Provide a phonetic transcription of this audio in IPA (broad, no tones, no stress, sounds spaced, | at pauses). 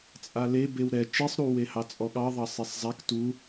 t͡sʼ a l e b e w ɾ ɛ t͡ʃ i sˤ ɾ u w e h ɑ t͡sʼ ɔ ɠ ɑ ðˤ ɑ sˤ e sˤ zˤ a k t u